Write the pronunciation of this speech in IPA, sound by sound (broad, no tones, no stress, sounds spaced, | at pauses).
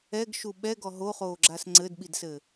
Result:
ɛ ɡ ʃ u ɓ ɛ ɡ ɔ ɦ o χ oː ɡ͡ǁ a s ŋ͡ǀ ɘ d ɓ i d s ɘ